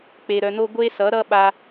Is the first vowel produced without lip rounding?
yes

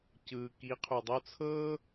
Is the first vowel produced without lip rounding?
yes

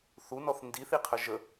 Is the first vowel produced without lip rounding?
no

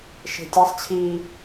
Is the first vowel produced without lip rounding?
yes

